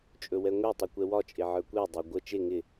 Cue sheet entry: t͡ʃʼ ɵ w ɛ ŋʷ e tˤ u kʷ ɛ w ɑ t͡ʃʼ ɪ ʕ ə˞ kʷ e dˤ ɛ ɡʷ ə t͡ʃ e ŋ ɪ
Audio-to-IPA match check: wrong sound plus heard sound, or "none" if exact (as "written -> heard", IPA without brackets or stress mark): ɑ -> ɒ